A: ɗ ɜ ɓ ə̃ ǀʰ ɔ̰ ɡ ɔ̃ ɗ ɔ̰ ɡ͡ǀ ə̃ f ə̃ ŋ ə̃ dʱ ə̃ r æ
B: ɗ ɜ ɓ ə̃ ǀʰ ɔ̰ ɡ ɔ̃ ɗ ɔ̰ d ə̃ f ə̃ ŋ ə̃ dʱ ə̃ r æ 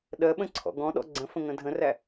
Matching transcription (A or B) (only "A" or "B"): A